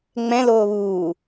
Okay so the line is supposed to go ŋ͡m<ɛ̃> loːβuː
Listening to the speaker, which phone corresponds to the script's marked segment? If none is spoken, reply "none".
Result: ɛ̃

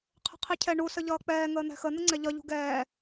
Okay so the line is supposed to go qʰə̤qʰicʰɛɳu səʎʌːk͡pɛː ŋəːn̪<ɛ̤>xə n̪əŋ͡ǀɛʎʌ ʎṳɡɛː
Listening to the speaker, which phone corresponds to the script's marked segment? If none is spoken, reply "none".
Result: ɛ̤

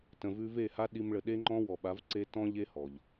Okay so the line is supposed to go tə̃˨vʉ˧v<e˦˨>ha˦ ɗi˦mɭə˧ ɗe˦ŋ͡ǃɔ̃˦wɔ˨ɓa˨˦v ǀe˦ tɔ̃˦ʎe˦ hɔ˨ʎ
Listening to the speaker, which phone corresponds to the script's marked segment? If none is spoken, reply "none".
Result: e˦˨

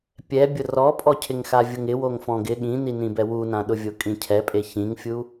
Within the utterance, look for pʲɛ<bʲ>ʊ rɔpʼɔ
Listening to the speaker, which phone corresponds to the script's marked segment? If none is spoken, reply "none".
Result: bʲ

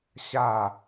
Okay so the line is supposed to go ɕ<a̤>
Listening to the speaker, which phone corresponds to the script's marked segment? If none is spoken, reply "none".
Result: a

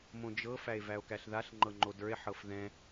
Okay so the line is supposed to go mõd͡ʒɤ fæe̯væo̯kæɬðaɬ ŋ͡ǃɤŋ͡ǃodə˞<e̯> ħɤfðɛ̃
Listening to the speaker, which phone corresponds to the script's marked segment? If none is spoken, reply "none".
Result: e̯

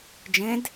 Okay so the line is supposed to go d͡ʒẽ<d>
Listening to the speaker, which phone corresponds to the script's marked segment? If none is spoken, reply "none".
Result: d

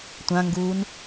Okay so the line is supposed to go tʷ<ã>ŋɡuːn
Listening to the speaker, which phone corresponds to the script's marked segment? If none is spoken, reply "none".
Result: ã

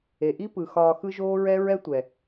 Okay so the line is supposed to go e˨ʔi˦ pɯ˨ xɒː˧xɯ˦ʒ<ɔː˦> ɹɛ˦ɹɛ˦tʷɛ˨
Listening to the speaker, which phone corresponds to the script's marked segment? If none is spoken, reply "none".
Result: oː˦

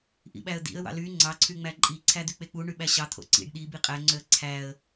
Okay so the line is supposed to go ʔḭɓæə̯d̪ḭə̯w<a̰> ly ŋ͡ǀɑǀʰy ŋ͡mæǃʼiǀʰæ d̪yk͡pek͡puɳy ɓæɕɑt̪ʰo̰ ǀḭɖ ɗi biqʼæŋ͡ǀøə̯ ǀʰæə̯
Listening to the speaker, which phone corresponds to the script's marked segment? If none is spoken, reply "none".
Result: ɑ̰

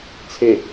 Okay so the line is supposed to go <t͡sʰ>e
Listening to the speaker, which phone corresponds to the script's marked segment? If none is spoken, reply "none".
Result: t͡sʰ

